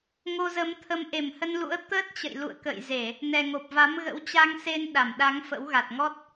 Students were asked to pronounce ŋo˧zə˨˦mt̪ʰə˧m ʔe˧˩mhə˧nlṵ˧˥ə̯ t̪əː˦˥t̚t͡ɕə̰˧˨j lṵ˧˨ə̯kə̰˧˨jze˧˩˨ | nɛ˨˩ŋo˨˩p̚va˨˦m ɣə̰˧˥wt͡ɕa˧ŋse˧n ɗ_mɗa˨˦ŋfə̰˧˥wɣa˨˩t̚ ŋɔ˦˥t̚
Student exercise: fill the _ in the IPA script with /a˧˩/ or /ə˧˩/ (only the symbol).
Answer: a˧˩